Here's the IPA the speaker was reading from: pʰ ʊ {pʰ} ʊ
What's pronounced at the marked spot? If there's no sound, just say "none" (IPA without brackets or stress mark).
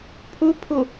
pʰ